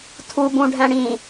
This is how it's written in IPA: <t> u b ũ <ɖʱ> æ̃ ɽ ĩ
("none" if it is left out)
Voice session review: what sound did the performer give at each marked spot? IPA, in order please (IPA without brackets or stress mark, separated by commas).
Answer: tʰ, ɖʱ